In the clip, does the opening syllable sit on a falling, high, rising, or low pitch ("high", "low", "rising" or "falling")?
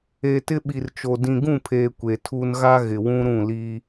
low